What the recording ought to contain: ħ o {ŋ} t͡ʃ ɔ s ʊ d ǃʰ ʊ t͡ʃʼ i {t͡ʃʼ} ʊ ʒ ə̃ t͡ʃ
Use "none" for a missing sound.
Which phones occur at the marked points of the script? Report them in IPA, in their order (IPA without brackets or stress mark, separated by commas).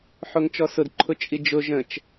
ŋ, d͡ʒ